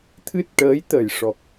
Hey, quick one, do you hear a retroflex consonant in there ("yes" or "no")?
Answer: yes